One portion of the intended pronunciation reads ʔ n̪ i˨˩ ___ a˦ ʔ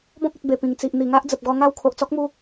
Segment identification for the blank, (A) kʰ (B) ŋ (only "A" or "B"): B